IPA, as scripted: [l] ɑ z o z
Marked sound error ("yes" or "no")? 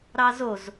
yes